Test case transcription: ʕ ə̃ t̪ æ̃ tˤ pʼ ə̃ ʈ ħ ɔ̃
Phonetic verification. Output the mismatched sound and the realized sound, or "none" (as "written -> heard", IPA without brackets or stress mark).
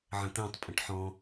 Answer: none